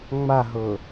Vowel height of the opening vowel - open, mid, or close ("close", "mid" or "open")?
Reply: open